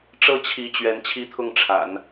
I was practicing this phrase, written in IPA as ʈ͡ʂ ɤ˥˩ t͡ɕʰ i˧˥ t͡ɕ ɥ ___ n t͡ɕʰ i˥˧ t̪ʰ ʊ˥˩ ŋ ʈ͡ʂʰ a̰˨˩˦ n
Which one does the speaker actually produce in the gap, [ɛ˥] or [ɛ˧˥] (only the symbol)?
ɛ˧˥